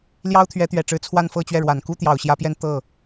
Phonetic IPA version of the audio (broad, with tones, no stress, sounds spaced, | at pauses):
l j ɑ˥ ʊ̯ t̪ʰ ɥ ɛ˧˥ t̪ ɥ ɛ˨˩ ʈ͡ʂ ɻ̩˧˥ t͡sʰ w a˥˧ n f ɤ˥˧ t͡ɕ ɥ ɛ˥˩ ɻ w a˨˩ n k u˥ t̪ j ɑ˨˩ ʊ̯ ɕ j ä˧˥ p j ɛ˥˧ n t̪ ɤ˥˩